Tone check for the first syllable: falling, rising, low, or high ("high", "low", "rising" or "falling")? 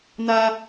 high